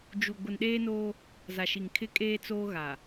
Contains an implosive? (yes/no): yes